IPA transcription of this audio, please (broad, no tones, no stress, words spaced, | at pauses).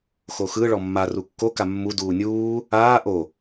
xoxɯɭɔ mːa rukːoka mːu duːnʲuː | aː ʔo